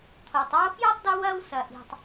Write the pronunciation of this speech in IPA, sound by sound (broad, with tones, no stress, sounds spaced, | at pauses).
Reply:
t̪ʰ oː˩ tˤ oː˦ f j œ˥ tˤ d o˦ w ɐː˦ w s ɐ˩ ʔ i̤˩ tˤ